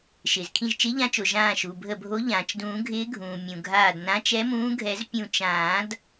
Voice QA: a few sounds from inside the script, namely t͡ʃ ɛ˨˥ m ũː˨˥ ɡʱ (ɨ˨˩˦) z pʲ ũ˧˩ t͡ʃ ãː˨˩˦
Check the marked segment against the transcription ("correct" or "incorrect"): incorrect